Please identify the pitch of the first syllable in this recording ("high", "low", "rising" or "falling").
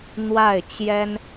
falling